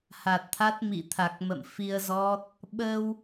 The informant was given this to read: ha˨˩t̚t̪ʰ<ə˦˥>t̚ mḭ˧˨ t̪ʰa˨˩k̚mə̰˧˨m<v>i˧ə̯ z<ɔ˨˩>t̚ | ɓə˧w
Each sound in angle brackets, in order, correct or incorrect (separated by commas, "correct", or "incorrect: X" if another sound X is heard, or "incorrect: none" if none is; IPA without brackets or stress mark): incorrect: a˦˥, incorrect: f, incorrect: ɔ˦˥